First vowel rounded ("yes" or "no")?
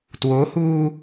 yes